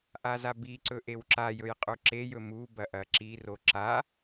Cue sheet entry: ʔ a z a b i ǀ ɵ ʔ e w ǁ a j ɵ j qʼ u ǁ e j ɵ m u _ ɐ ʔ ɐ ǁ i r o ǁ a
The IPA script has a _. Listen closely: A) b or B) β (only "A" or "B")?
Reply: A